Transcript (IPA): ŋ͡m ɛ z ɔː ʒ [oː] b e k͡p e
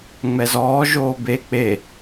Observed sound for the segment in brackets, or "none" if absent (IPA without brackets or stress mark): oː